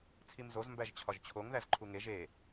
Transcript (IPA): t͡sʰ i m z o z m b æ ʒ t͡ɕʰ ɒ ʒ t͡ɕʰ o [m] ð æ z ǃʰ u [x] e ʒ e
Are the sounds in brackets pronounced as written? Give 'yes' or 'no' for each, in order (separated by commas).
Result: no, no